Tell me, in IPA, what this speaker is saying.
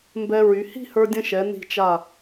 m b ɛ˧ ɹ y˩˧ h i̤˥˧ h ə˞˧ dʲ ə̃˧ ʃ ɛ˩˧ n i̤˧˩ t͡ʃ a˧˩

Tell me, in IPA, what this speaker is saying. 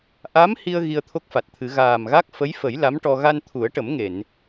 ʔ a˧˥ m h i˧ ə̯ ɣ i˧ ə̯ t̪ʰ o˦˥ k̚ f a˨˩ t̚ t̪ʰ ɨ˨˩˦ ɣ aː˨˩ m ɣ a˦˥ k̚ f ə˧˥ j f ə˨˩˦ j l a˧˥ m ʈ ɔ˧ ɣ a˧ n t̪ʰ u˨˩˦ ə̯ ʈ ə˨˩˦ m ŋ e˨˩˨ n

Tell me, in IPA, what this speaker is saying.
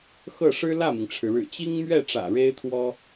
x ɤ˥˩ ʂ ɻ̩˥ l ä˥˩ m i˩ ŋ ʈ͡ʂʰ ɻ̩˩ ɻ ɻ̩˨˩ t͡ɕ i˥ ŋ m ɥ ɛ˥˩ ʈ͡ʂ ä̰˨˩ ɻ e˥ ɪ̯ t̪ʰ w ɔ˥

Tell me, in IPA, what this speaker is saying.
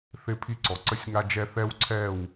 θ ɪ˦ pʰ i˦ ǀ ɔ˨ ǀ ə˦ sʲ ŋ a˦ d͡ʒ ɛ˦ θ ɛ˦ w ǀʰ ɛ˦˨ w

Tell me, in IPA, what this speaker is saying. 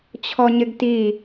t͡ɕʰ ɔ ɲ ɪ ɡ t i

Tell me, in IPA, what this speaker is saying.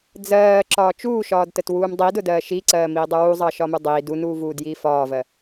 d͡z ɜː ǁ ɒː t͡ʃ uː ʃ ɒː d t ə t w uː m dˤ i d ʊ d ɜː ʃ i ǀ ɜː m iː dˤ u w u zˤ ɑ ʃ ɒ m u dˤ iː d u n uː v uː d j iː f ɒː v ɜ

